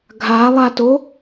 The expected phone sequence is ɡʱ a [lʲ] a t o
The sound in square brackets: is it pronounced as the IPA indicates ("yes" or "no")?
no